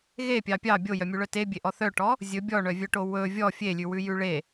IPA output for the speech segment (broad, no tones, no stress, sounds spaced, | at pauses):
ɣ e pʲ ɑ pʲ ɑ bʲ o j œ mʲ u ɭ œ t e bʲ e ʔ ɔ θ œ ʈ ɔ | zʲ ɵ bʲ ɔ ɳ œ vʲ œ ʈ o w ɵ vʲ ɔ fʲ e lʲ ʉ w ʉ j ʉ ɭ e